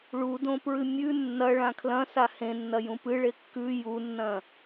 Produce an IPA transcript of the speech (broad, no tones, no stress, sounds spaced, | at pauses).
ɭ u d õ p ɹ ɨ mʲ ʉ nː ɐ ɭ ã kʰ l ɐ̃ s a h ẽ nː ɐ j ũ p ɨ ɭ e kː ʉ j u nː ɐ̃